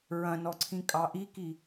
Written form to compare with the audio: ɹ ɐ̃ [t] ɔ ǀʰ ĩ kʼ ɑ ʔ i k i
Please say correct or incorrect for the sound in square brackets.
incorrect